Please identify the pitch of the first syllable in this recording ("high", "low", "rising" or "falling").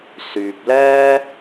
low